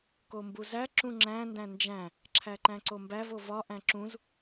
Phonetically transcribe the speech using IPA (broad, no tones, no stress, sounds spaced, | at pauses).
k o m b u z æ ǁ ũ ŋ͡ǁ æ̃ n d æ̃ n d͡ʒ æ̃ | ǁʰ æ ǃ æ̃ ǀ o m b æ v o v ɒ ʔ æ̃ ǁ ũ z